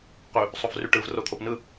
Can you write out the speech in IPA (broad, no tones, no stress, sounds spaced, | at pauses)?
q y | sˤ o v r y ʈ ɯ v r o t̪ʰ o p n ɯ